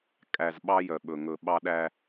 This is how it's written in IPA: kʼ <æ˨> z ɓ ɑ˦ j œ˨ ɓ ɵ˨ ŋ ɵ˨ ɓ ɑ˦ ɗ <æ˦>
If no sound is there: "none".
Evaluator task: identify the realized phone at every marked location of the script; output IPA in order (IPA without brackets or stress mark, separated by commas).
æ˨, æ˦